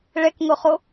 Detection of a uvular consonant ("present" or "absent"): present